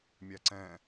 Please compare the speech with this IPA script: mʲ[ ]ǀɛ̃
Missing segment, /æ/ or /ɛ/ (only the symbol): æ